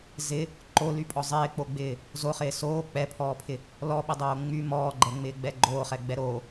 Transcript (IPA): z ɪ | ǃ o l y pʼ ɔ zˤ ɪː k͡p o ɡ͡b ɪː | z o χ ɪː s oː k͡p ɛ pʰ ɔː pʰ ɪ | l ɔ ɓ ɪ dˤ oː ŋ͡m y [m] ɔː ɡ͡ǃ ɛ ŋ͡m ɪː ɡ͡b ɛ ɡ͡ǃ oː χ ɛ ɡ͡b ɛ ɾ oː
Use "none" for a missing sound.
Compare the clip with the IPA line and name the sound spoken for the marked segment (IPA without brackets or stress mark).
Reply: m